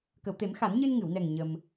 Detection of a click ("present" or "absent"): absent